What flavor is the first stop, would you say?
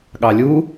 implosive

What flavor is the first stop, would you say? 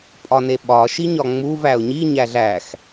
ejective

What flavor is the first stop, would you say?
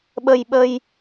implosive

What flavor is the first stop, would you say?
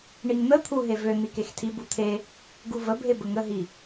aspirated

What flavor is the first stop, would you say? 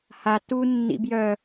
plain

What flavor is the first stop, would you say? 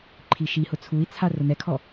click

